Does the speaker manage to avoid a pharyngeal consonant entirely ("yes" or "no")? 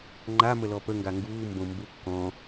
yes